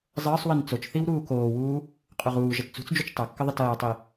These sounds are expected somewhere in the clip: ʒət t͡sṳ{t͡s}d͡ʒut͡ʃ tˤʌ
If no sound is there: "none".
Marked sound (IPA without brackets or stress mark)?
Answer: t͡s